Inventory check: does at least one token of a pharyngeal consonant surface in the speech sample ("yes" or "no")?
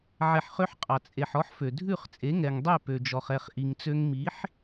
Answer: yes